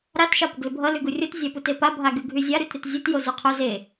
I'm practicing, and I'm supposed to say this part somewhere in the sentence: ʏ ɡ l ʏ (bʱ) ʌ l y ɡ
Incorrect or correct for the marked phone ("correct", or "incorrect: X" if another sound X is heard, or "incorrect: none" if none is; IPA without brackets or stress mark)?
correct